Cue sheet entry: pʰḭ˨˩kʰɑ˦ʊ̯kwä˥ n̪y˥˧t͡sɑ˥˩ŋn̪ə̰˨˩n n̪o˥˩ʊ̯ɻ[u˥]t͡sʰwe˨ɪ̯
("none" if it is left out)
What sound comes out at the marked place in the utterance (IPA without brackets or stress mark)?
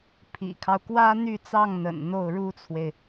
u˥